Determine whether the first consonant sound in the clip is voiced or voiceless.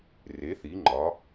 voiced